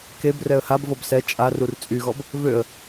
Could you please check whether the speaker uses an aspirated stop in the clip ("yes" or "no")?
no